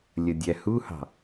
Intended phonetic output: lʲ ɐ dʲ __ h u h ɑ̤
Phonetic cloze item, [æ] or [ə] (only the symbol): æ